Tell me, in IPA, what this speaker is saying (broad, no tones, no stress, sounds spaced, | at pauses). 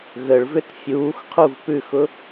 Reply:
ɣ ə ɭ v ʏ t fʲ uː x qʰ u v p ʉ x ʊ